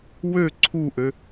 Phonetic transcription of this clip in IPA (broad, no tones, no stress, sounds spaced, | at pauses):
w ø ǀʰ u ʔ ø